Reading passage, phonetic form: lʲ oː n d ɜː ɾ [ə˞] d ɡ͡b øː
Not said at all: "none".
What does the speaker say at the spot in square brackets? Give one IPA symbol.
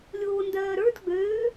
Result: ə˞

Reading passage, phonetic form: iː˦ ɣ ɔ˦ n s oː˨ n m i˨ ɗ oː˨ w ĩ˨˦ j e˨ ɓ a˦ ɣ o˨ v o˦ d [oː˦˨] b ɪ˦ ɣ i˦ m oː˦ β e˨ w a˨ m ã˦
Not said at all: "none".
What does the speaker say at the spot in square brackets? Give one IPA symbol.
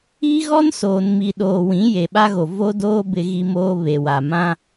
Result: oː˦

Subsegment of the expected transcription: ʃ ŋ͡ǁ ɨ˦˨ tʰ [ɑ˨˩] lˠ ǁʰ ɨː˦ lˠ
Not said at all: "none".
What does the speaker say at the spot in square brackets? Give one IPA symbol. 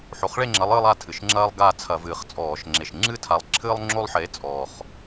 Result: a˨˩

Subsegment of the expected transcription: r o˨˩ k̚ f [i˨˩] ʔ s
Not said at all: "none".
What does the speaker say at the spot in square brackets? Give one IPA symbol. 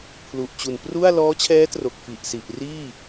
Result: i˨˩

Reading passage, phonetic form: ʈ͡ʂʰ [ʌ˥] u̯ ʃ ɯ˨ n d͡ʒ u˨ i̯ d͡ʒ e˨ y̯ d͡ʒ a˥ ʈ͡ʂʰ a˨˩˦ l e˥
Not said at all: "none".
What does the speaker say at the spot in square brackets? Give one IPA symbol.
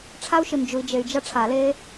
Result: a˥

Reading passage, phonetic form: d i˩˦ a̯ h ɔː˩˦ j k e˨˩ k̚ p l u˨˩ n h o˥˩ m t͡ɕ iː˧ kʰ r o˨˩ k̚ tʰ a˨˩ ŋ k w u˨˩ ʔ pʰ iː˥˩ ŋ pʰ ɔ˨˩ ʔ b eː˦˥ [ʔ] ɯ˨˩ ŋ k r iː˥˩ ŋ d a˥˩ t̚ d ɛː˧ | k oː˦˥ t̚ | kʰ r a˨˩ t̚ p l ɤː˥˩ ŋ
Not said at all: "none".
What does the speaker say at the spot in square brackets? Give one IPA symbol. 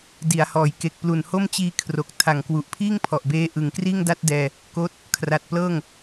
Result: ʔ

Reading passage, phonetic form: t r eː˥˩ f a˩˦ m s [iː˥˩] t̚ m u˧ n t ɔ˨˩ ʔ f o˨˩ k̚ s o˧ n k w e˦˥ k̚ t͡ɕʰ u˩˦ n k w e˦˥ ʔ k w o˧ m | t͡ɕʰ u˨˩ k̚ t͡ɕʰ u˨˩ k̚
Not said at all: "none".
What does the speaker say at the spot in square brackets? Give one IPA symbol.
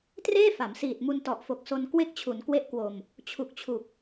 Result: iː˨˩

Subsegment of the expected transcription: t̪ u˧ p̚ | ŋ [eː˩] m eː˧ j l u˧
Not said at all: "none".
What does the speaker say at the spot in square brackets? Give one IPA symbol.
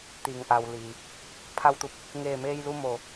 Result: eː˧˩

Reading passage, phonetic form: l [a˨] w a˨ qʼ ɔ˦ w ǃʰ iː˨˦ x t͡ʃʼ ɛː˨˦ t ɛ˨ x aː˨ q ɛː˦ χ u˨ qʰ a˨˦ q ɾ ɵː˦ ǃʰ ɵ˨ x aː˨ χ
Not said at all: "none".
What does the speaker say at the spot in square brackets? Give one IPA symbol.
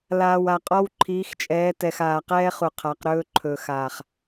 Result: aː˨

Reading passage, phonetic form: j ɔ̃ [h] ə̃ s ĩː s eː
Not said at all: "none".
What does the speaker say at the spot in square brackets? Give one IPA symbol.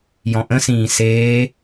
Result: ʔ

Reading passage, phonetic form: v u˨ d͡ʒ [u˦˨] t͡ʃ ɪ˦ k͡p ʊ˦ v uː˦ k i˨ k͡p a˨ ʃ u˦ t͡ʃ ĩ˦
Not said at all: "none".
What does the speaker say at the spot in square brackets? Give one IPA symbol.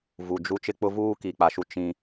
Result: u˦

